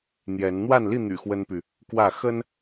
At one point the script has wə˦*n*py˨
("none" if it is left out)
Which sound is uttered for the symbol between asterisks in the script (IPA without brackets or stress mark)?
n